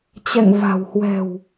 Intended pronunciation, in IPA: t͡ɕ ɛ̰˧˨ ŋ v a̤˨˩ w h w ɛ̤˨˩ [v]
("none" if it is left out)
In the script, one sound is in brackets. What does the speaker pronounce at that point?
w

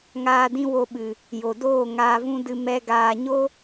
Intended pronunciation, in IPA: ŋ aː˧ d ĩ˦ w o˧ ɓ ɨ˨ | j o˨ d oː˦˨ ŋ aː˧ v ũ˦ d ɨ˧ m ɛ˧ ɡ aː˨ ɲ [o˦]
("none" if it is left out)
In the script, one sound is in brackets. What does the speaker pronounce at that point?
o˦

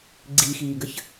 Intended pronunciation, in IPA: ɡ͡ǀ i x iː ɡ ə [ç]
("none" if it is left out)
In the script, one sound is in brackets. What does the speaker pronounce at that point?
ç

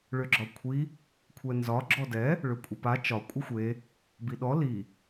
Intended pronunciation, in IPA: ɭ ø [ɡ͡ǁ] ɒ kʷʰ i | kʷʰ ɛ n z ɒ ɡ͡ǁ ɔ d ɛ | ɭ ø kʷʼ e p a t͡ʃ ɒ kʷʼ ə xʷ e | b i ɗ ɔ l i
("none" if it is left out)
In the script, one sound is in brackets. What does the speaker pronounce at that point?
ɡ͡ǁ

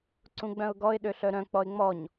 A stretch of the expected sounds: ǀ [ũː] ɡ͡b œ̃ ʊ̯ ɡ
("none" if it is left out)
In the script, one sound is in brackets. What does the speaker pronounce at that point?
ũ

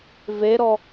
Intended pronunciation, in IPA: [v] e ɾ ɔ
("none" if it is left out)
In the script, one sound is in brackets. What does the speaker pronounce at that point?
v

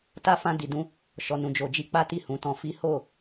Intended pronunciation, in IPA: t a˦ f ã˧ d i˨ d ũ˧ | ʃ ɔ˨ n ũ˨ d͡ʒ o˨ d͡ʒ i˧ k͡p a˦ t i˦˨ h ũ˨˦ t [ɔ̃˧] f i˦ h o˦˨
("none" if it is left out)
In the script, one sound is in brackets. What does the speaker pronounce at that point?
ɔ̃˧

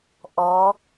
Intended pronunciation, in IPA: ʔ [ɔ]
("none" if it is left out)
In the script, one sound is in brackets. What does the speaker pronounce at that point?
ɔ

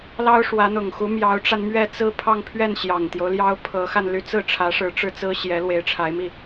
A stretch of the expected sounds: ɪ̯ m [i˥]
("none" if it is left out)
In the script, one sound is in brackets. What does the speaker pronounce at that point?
i˥˩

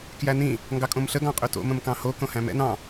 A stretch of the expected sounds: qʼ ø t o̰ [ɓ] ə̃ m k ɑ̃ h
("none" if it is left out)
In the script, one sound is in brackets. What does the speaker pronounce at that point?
m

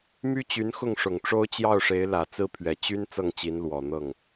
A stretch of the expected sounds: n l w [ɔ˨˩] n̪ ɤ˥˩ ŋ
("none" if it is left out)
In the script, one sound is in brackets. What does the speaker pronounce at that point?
ɔ˨˩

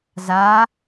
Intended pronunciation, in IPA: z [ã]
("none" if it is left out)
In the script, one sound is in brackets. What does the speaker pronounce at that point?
a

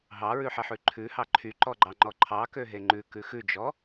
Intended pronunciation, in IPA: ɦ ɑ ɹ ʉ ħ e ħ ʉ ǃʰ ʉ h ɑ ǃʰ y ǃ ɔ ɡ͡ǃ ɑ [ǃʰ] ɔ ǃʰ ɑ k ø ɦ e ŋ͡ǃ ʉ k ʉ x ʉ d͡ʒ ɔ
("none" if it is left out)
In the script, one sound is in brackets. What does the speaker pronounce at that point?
ŋ͡ǃ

